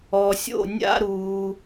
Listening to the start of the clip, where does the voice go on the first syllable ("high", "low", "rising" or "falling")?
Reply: low